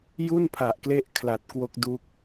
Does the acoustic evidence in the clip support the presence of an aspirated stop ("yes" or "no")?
yes